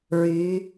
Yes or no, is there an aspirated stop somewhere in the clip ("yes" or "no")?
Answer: no